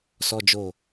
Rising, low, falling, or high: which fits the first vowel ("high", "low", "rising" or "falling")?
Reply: low